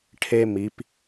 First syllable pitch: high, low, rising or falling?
high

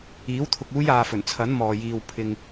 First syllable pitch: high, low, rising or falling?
rising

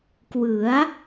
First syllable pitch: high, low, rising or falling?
rising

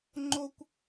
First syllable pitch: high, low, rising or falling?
high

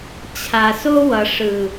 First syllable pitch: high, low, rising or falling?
low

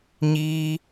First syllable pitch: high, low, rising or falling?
high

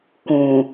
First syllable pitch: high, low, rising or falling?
low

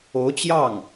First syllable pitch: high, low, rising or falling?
rising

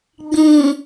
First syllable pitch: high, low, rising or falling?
low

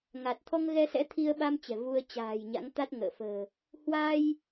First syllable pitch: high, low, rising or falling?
low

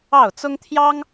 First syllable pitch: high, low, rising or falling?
falling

